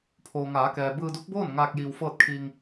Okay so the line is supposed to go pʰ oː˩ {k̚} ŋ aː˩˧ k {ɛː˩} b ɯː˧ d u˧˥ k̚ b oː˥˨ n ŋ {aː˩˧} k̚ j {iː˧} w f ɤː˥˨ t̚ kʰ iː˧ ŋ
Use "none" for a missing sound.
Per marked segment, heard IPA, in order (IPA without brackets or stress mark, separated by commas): none, ɛː˩, aː˧, iː˧